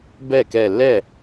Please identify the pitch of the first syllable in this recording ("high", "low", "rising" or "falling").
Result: falling